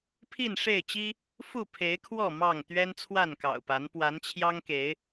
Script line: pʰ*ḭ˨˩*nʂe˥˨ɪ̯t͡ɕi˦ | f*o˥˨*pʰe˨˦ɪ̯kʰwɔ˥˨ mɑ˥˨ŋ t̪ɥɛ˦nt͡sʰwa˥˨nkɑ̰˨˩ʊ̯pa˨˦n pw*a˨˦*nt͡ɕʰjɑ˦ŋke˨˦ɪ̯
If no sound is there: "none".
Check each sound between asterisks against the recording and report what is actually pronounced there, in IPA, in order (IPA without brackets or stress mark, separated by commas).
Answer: i˥˨, u˥˨, a˨˦